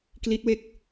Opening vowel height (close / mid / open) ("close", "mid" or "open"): close